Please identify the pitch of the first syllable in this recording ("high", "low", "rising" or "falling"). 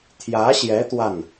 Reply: rising